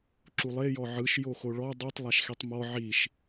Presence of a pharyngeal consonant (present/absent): present